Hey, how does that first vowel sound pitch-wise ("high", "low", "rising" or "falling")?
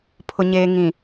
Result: low